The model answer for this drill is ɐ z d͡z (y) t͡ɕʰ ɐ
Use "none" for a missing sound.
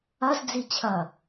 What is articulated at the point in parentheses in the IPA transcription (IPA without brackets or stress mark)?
i